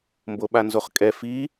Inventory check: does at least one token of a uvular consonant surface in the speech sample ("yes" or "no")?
yes